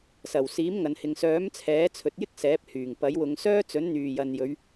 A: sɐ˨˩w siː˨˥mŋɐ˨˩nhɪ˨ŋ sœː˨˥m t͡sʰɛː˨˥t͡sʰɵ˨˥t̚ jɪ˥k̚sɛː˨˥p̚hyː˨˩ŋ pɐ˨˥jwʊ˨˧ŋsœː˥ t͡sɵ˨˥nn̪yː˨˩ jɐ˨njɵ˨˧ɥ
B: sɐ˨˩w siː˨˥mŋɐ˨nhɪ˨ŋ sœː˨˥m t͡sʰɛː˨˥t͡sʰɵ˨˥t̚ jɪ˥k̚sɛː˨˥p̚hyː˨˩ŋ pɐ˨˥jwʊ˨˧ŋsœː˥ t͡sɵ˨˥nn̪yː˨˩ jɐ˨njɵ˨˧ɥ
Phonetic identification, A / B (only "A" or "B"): B